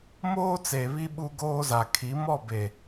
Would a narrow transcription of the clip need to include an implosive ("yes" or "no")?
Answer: yes